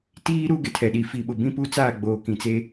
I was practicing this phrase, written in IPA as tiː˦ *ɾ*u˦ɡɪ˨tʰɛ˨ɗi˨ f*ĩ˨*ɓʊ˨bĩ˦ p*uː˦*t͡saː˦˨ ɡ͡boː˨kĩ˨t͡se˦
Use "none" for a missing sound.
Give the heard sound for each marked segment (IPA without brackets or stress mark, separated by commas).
ɾ, i˨, u˦